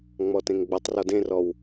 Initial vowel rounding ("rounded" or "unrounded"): rounded